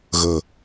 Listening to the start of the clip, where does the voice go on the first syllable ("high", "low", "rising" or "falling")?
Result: low